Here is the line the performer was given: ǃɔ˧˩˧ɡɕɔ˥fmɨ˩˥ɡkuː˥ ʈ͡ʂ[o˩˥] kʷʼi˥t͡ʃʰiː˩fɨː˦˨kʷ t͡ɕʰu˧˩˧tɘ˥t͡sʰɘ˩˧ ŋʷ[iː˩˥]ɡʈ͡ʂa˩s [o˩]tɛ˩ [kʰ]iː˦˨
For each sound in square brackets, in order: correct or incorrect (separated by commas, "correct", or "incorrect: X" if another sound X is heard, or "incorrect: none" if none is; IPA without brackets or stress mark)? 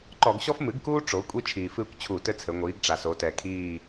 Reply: incorrect: o˩˧, incorrect: iː˩˧, incorrect: o˩˧, correct